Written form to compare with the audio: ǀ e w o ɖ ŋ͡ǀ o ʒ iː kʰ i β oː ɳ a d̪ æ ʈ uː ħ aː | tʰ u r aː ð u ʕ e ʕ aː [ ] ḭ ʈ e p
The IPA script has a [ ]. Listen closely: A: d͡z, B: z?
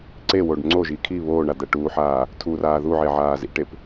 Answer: B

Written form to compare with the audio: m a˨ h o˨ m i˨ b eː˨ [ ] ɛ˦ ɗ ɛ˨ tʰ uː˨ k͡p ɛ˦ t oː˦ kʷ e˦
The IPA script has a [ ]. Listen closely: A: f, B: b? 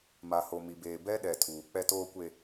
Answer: B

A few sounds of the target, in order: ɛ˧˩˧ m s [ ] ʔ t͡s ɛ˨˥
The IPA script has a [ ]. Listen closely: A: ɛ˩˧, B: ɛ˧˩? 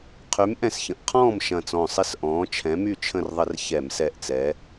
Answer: B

